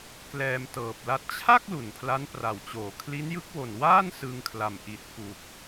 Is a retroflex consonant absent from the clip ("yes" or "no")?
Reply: yes